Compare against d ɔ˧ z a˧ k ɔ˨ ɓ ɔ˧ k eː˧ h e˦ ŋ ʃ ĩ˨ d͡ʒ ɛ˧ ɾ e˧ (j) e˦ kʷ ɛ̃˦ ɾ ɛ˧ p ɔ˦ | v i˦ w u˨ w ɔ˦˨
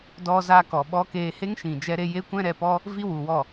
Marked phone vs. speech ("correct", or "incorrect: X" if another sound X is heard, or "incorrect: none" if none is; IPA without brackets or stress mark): correct